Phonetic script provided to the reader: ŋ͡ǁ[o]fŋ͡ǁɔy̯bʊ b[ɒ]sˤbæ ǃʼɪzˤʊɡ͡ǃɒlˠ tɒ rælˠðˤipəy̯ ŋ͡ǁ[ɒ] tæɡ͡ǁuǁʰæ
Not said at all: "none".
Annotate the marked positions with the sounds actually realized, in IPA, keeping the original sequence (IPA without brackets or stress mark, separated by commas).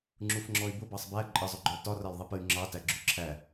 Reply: u, ɑ, ɑ